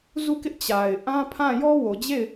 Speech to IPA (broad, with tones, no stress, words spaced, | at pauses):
zu˦˨kɪ˦ʔ t͡ɕa˨ɪ̯ ʔã˦pʰã˦˨ jɔ˦wo˨d͡ʑe˦˨ɪ̯